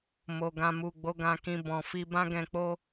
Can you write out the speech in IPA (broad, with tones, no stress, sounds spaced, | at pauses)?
m o˨ ɡ ã˨ m u˨ ɡ͡b o˨˦ ɡ ã˧ k ĩ˧ b ɔ̃˨ f i˧ b ã˦ ɡ ɛ̃˧ k͡p o˦